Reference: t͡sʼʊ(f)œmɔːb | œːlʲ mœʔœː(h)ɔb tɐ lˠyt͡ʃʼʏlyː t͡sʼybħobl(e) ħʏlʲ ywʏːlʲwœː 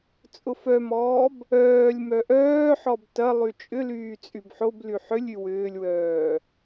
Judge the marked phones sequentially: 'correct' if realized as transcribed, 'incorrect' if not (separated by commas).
correct, incorrect, incorrect